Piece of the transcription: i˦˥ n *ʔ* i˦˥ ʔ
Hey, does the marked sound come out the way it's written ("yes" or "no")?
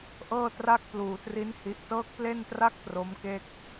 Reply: no